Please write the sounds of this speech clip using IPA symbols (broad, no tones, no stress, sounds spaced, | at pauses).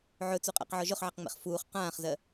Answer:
ʕ ɵ t͡s u qʼ a̰ q ʕ ɔ ʒ ɵ χ ʕ ɜ q ŋ͡m ḛ χ f uː χ q ãː χ z ɜ